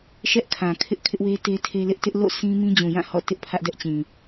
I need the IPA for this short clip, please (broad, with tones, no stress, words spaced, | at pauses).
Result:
ʃɛ˦ʔkʰã˨kʰɪ˦ʔ kʰɪ˦ʔwe˦te˦ tʰe˦lɪ˦ʔ tɪ˦ʔlo̰˦˨ sĩ˦mĩ˦ d͡ʑũ˨jã˦˨ hɔ̰˦˨tɪ˦ʔ pʰä˦ʔdɛ˦ʔt͡ɕĩ˨